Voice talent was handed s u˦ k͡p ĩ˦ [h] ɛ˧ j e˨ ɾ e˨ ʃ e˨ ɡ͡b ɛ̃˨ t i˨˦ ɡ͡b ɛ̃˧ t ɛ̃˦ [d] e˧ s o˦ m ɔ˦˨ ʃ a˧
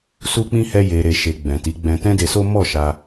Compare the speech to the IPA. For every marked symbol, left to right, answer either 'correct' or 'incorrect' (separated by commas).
correct, correct